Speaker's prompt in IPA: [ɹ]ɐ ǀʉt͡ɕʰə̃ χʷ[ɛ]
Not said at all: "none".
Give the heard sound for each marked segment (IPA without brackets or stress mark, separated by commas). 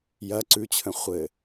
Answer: j, ɘ